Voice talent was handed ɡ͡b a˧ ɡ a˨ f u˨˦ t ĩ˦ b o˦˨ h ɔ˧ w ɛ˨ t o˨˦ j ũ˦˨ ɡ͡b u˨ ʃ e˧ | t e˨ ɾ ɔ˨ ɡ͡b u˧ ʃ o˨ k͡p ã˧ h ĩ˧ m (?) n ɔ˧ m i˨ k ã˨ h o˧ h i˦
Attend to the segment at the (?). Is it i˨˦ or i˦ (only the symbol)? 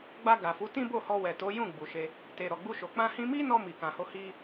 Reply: i˦